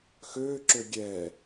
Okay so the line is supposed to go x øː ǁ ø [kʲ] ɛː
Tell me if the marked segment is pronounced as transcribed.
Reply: no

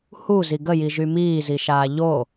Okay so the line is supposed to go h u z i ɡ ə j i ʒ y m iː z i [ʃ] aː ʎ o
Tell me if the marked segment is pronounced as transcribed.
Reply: yes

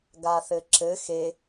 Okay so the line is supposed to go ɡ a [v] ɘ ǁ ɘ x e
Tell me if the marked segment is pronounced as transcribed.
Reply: no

